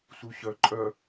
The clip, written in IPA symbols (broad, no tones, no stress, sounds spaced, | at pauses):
s u ɕ œ ǃʼ œ